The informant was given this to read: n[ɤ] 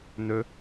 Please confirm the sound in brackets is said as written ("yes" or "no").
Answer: no